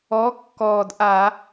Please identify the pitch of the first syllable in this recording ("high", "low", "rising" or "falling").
rising